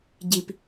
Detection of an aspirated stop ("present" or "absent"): absent